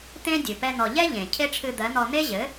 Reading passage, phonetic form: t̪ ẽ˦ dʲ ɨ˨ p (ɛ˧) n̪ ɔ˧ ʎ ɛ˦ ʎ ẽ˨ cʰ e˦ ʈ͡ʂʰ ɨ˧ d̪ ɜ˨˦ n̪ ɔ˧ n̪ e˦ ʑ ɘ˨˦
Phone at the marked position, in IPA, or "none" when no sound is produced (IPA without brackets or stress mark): ɛ˦